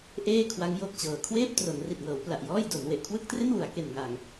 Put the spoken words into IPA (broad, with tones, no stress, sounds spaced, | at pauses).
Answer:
ʔ eː˥˩ kʰ w a˦˥ ŋ j o˦˥ k̚ t͡ɕ ɤː˨˩ kʰ w eː˥˩ p̚ t r o˩˦ n r i˨˩ t̚ ŋ ɤː˩˦ w p l a˨˩ ʔ j ɔː˥˩ j d o˩˦ n w e˨˩ ʔ kʰ w ɯ˥˩ k̚ t r e˥˩ n w u˩˦ a̯ k e˨˩ n ŋ a˨˩ ŋ